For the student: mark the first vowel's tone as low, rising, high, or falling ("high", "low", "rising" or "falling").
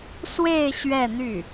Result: falling